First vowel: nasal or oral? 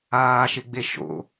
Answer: oral